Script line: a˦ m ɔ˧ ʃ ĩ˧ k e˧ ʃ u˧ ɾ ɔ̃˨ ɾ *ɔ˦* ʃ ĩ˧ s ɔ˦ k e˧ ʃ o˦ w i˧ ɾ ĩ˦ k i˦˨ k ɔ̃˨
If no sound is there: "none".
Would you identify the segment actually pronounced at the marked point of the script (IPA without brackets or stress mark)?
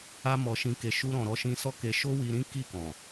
ɔ˧